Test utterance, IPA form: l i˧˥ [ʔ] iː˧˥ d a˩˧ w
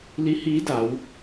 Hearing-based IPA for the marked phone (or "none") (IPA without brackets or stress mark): h